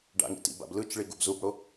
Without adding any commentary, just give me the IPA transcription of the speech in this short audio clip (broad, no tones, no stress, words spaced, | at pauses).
ɖa̰ŋḭ tḭba̰b lɯt͡ʃɭi ɡubzubɽo